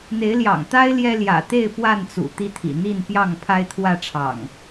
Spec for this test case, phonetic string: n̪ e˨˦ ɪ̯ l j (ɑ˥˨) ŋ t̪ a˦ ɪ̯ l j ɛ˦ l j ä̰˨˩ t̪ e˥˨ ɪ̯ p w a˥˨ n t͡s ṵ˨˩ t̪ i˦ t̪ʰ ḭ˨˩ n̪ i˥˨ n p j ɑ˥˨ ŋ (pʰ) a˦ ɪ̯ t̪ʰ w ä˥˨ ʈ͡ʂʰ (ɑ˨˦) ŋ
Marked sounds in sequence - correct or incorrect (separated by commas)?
incorrect, correct, incorrect